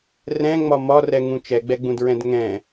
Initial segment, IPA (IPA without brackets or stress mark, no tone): r